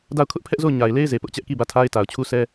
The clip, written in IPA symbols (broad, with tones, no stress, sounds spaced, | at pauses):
d a˦˨ ʊ̯ kʰ ʊ˦ ʔ pʰ ɛ˦ ʔ z o˦˨ ʊ̯ ɲ a˨ ɪ̯ l e˦ ɪ̯ z e˨ p ʊ˦ ʔ t͡ɕ ɛ˦ ʔ k i˦˨ b ä˦˨ tʰ a˦ ɪ̯ t a˨ ʊ̯ t͡ɕʰ u˦ sʰ ɛ˦